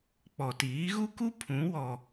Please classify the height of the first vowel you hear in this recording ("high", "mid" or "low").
mid